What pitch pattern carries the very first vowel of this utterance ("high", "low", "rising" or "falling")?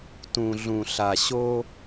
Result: low